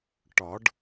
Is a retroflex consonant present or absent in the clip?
present